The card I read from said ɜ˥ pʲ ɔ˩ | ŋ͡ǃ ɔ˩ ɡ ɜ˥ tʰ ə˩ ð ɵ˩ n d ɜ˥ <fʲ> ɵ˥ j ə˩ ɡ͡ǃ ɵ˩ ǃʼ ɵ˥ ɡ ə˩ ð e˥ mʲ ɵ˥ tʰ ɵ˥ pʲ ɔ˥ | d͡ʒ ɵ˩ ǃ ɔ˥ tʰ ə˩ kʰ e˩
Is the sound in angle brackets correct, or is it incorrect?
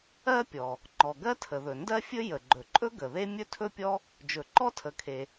correct